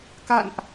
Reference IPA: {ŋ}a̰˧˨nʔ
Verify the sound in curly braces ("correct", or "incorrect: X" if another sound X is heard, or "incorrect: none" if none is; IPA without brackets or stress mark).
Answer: incorrect: k